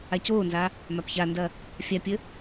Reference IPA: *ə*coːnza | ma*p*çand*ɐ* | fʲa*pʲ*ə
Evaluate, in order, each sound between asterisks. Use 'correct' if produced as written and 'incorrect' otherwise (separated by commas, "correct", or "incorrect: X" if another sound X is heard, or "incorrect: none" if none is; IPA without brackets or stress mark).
incorrect: a, correct, correct, correct